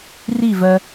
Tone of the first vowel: falling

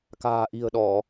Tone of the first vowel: low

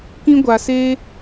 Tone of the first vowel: high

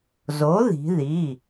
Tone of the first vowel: rising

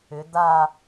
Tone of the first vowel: rising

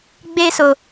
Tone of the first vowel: high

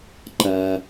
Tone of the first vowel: high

